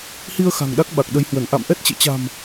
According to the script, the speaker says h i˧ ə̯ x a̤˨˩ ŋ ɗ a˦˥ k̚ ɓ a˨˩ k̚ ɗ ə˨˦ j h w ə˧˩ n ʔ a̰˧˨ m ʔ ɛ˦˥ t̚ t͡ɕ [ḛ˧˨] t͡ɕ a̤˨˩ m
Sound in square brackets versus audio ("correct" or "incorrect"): correct